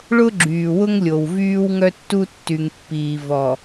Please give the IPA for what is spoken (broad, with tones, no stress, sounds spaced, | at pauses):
ɭ ʊ˦ ɡ͡ǁ yː˨ w ʊ˦ ŋ lʲ o˨ w v yː˦ w ŋ œ˦ tː u˦ tː y˨ ŋ pː iː˨ v ɔ˨